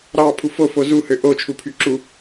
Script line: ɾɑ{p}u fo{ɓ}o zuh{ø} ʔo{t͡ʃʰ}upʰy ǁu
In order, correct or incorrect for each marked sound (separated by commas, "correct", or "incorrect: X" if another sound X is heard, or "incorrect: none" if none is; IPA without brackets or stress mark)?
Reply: incorrect: pʰ, incorrect: f, correct, correct